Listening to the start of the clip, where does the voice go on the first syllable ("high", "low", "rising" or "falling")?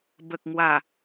low